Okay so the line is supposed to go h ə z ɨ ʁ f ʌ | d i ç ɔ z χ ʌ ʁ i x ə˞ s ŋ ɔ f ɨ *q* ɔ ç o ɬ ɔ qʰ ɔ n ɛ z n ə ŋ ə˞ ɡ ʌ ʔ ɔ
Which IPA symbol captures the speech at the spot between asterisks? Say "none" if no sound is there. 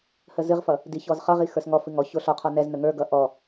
ŋ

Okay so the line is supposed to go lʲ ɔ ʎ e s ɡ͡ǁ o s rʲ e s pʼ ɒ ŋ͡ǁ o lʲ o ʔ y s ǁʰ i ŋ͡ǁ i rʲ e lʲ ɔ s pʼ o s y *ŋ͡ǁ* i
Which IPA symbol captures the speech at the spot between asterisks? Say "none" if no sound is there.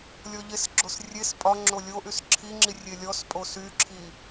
ǁʰ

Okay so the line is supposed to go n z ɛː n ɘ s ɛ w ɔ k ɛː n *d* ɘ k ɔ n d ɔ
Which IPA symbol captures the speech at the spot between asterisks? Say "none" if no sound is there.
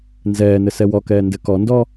d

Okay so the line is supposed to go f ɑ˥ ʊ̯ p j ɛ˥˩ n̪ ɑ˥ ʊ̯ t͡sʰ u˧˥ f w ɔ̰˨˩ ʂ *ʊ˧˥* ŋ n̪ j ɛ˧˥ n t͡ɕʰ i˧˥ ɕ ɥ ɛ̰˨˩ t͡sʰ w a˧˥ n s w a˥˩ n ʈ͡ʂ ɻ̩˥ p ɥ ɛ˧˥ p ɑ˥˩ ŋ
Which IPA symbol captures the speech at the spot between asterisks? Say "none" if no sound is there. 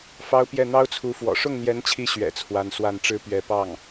ʊ˥˩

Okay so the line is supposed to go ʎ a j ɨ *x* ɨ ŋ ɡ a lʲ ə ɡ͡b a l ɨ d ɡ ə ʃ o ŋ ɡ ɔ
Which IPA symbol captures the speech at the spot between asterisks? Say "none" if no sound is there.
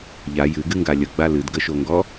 ɡ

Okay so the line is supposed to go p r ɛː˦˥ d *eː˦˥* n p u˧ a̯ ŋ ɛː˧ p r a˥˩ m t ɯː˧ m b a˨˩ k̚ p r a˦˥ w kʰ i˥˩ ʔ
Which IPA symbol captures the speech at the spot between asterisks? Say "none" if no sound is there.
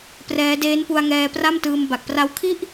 eː˦˥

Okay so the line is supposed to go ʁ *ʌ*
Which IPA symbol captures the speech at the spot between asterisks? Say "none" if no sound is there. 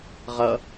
ʌ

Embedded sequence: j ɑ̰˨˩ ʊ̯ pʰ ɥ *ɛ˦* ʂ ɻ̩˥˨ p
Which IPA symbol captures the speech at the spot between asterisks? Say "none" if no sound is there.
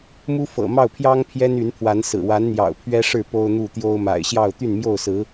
ɛ˦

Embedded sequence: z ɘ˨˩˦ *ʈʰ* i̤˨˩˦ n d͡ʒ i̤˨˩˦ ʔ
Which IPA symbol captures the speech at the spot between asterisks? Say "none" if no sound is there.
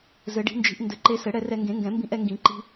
ɖ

